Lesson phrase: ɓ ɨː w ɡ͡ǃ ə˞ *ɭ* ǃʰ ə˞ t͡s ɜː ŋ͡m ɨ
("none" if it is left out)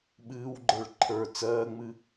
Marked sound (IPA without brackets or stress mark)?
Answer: ɭ